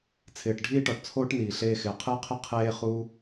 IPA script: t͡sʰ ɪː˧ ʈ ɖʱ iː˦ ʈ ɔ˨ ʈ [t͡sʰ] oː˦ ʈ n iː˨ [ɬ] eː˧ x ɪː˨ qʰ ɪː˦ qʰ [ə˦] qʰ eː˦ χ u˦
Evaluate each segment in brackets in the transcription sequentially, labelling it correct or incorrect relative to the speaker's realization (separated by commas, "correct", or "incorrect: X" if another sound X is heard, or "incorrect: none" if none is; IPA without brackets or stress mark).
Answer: correct, correct, incorrect: ɪ˦